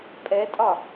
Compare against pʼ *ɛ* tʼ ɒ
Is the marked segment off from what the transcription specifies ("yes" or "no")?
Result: no